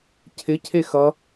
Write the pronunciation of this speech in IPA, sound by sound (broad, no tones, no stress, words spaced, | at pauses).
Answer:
cʰɪ cʰexʌ